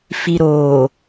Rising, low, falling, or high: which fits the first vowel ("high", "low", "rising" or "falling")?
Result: low